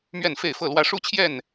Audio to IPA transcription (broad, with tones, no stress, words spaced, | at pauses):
mɥɛ˥˨nfe˥˨ɪ̯fɤ˥˨lwä˦ ʂu˦t͡ɕʰjɛ˥˨n